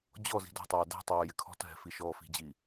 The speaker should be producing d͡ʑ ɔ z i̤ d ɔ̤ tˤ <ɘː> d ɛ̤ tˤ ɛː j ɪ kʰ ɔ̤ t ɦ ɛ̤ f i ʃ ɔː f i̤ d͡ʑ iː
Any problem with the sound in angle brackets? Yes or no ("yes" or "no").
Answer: yes